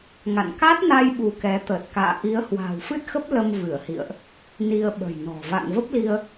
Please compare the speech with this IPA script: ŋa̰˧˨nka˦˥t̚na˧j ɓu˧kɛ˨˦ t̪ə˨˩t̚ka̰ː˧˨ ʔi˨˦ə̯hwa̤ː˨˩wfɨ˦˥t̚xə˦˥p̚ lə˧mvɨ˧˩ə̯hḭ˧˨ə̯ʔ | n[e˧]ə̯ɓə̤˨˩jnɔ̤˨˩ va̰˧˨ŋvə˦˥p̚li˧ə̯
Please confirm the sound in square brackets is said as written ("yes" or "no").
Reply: no